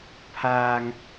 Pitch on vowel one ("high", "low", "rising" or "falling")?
high